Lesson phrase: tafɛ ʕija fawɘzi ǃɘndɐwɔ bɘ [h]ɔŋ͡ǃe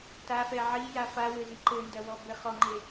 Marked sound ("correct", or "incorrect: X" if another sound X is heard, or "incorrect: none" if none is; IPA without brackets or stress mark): incorrect: χ